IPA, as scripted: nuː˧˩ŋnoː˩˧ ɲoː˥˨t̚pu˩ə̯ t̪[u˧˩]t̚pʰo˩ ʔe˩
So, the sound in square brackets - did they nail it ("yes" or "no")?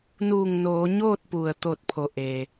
no